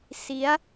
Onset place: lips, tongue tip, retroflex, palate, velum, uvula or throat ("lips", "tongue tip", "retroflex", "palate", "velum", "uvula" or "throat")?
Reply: tongue tip